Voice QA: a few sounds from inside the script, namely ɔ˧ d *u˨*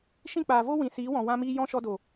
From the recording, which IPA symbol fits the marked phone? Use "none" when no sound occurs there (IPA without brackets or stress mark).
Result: o˨